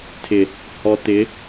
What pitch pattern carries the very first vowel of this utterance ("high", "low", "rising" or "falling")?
low